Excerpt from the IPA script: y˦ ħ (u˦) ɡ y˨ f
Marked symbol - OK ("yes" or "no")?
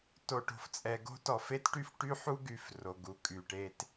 yes